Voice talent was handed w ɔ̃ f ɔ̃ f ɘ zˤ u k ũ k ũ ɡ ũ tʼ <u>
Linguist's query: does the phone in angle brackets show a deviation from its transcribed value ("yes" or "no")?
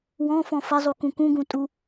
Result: no